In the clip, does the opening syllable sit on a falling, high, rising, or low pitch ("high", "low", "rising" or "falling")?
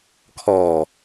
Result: low